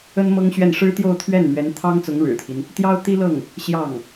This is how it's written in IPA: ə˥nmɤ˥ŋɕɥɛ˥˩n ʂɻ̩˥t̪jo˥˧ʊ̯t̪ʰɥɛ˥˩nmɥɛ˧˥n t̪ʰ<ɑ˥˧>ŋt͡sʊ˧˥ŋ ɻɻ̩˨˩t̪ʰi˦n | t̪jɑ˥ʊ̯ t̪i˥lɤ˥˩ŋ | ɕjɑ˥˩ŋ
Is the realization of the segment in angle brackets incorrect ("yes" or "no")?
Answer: yes